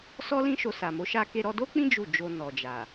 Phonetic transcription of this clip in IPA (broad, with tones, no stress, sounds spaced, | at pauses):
s ɔ˦ l ĩ˦ ʃ o˧ s a˨ m o˨˦ ʃ a˦ k e˧ ɾ ɔ˧ d o˦ k͡p ĩ˦ d͡ʒ u˦˨ d͡ʒ o˧ n ɔ˨ d͡ʒ a˨